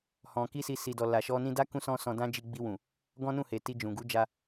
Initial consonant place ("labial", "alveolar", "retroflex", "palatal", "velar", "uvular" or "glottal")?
glottal